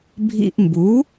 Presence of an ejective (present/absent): absent